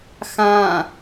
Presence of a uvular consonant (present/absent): absent